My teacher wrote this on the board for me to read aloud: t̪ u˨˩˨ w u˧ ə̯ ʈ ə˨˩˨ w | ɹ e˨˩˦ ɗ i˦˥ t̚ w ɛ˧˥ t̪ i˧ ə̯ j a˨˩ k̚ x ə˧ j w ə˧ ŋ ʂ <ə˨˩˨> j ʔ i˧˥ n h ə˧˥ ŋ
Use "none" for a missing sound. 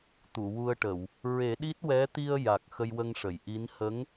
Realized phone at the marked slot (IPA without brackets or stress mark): ə˨˩˨